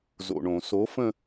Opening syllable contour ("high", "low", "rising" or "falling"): low